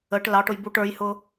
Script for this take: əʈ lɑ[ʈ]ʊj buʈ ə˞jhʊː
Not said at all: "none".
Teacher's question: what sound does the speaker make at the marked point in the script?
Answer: ʈ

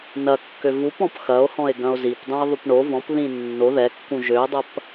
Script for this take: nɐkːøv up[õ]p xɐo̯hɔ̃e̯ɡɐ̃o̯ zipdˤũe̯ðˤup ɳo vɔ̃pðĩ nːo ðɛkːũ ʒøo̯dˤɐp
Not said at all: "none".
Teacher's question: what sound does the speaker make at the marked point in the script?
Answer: ɔ̃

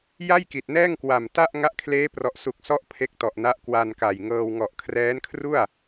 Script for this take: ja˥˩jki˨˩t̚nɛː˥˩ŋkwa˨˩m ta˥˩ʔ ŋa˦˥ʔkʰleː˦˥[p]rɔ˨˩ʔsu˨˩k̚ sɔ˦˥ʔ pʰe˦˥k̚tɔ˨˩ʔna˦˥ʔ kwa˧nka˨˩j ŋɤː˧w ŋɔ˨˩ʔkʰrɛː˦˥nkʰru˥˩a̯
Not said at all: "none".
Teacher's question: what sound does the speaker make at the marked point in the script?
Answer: p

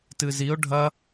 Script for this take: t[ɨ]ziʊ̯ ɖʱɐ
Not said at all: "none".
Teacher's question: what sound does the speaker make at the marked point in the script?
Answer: ɨ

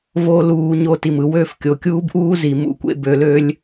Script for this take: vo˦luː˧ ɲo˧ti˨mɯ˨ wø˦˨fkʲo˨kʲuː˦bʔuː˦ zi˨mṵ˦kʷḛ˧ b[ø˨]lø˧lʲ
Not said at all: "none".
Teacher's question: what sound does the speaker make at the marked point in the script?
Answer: ø˨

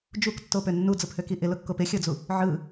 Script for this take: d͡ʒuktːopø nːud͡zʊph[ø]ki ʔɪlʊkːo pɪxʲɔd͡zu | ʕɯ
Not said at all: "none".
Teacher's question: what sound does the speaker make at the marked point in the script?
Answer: ø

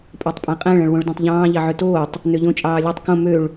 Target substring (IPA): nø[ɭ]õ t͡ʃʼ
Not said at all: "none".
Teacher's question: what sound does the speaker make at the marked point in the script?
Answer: ʎ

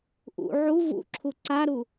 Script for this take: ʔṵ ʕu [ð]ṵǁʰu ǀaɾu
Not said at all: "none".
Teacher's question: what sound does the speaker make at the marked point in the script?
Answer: v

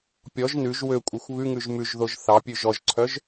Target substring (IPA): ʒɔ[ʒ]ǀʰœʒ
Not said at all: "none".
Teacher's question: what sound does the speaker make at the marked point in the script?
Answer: ʒ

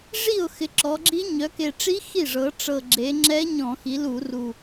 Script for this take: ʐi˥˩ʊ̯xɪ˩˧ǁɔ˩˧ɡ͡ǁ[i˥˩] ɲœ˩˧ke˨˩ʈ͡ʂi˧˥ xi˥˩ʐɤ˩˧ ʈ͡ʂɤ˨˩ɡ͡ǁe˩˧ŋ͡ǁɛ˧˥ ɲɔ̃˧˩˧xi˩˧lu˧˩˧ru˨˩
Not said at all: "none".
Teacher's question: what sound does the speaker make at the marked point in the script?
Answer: i˧˥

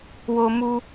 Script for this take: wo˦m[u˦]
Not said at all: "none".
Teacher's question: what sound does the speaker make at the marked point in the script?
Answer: u˦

